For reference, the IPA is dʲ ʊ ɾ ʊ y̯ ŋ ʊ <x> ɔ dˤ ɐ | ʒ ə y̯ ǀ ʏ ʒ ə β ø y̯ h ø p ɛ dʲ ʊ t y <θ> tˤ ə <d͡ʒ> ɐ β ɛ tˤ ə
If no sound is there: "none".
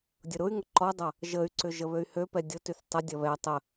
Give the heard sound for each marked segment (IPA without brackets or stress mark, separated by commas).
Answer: ǃ, θ, dʲ